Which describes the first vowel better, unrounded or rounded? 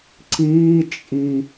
unrounded